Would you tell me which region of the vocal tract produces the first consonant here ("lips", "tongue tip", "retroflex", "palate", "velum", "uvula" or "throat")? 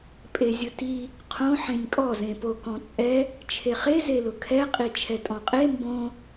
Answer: lips